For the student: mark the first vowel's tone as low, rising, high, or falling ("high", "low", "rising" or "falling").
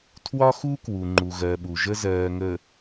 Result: high